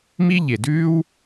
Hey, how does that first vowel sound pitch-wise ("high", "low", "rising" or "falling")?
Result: high